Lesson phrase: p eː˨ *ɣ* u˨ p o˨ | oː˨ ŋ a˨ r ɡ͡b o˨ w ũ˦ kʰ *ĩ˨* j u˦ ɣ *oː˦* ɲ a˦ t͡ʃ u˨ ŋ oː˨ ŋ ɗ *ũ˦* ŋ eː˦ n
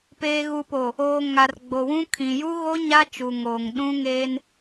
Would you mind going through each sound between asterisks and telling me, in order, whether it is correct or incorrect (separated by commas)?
correct, correct, incorrect, correct